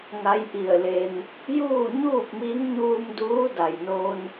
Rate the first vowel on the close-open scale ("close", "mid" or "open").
open